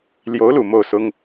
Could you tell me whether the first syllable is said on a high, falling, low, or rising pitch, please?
rising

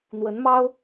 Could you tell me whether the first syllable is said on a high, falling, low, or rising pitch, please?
rising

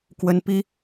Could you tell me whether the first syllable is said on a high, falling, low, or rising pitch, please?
high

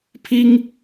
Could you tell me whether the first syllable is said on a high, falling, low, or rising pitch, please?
high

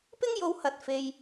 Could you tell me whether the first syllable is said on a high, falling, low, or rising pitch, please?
high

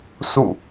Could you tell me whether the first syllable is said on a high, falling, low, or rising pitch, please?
falling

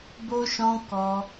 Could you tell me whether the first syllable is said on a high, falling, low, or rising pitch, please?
high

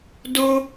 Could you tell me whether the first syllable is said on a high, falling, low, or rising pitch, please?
high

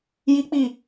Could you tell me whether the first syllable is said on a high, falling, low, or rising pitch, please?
high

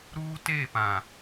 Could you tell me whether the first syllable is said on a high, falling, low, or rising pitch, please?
high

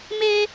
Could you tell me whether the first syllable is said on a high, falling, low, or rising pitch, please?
high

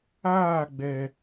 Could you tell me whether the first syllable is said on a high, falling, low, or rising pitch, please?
falling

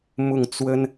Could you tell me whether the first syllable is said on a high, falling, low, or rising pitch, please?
falling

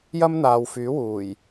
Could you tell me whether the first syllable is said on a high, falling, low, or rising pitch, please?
high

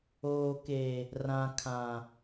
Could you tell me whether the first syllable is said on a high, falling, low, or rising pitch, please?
low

